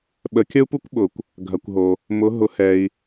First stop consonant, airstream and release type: implosive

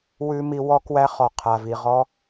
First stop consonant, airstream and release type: plain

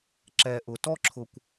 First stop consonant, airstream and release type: click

